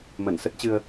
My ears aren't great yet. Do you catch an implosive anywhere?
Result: no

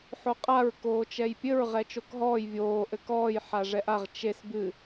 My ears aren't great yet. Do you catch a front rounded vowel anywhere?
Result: no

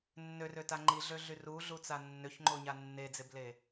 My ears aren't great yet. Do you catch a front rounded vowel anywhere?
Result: yes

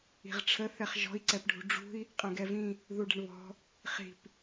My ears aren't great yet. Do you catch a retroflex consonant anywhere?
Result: yes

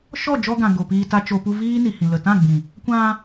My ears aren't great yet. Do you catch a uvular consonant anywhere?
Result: no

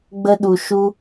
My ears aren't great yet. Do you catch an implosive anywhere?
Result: yes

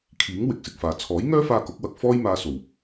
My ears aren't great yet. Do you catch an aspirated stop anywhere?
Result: yes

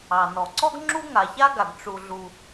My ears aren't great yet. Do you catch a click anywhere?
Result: yes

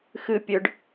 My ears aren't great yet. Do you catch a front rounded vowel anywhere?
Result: yes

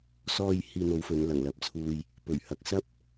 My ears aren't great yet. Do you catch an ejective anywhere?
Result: no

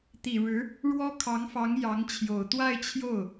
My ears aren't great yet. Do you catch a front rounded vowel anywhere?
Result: no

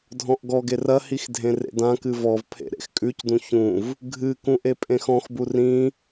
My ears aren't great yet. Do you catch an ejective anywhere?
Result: yes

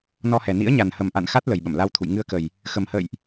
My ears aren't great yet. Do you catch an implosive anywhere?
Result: yes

